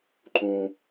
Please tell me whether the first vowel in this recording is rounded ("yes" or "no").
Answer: yes